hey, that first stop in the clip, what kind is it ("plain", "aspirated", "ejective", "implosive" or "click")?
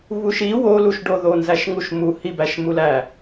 plain